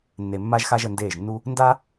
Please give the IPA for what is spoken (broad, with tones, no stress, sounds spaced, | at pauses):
nː e˨ mː a˧ ʒ x a˧ ʒ ə˨ n d eː˦˨ ʒ nː u˦ | n d a˦